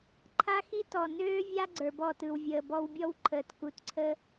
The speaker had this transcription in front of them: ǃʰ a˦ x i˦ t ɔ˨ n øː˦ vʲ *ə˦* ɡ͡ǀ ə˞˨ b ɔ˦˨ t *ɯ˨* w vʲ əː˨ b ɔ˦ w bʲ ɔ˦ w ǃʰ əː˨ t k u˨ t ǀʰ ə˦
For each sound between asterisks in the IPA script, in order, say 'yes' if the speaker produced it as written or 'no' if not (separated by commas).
no, yes